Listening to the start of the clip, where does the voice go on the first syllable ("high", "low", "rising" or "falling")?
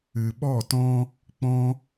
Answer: low